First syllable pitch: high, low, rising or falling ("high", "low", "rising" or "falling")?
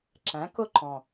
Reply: rising